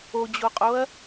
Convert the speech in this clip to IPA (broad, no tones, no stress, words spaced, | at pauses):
od͡ʑoqʼoɐ̯